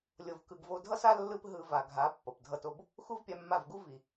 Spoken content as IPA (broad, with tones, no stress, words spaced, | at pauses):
lʲo˧vkɯ˧ɡ vo˧dʱʌ˦sa˦ lːɯ˦pɦɯ˧ va˨ɡʱa˨˦ pːʌ˨pdʱʌ˦to˦b | xu˦vpʲa˧mːa˦˨vɡu˦ vi˨